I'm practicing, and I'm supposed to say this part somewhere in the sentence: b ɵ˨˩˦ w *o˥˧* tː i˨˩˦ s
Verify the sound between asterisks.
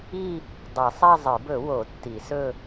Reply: incorrect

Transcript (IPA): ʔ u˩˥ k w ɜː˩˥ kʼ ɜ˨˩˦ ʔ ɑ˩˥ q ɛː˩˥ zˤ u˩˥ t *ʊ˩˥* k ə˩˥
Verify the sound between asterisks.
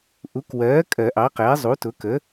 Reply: correct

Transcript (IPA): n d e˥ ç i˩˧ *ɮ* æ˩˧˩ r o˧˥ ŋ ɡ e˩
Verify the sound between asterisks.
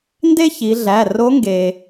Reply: correct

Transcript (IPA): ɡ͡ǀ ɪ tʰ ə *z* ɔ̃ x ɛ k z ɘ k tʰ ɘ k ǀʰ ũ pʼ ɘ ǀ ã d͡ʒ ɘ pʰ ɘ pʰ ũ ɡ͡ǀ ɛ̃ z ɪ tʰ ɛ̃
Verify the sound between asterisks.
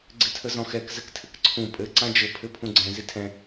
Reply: correct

